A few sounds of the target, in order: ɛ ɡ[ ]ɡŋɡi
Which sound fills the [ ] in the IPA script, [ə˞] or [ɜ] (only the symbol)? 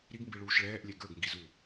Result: ə˞